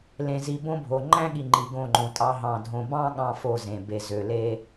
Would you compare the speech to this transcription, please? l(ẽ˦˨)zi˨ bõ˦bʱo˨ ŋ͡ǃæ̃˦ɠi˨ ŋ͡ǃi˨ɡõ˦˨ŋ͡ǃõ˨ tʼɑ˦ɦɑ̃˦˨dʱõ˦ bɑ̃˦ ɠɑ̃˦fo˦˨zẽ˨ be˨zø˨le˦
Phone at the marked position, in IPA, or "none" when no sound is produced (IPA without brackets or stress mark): ẽ˨